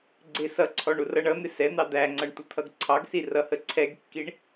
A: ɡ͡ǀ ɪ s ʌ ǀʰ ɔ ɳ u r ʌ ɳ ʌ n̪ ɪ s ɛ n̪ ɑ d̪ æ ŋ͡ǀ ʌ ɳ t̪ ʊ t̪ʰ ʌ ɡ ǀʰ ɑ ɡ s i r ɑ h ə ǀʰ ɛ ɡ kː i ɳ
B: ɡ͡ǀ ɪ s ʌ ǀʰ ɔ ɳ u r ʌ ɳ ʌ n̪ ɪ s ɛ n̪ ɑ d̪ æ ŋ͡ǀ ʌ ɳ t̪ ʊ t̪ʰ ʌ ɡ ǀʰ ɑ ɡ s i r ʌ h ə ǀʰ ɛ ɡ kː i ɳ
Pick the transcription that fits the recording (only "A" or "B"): B